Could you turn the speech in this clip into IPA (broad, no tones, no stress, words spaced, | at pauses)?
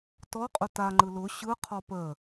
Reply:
tɔqʼʊ taŋ͡ǃɯ lʊ ɕɯqʰɔ pə